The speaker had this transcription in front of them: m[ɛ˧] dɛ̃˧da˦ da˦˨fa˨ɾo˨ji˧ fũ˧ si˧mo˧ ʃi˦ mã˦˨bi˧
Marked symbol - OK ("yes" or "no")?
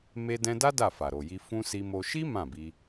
no